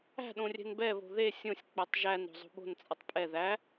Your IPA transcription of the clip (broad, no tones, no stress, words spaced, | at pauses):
æ̤ɗõrʲɛ̤n bɛβo̤ ðe sʲõsʲ k͡pɛtˤʒæn ɾo̤zˤo̤ɓo̤n t͡sʼʌtˤpʼɛ ðæ